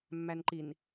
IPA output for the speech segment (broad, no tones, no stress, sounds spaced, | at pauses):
mː æ n ǃ i n